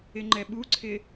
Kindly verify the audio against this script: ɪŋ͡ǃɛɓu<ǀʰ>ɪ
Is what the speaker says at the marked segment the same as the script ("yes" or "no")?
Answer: yes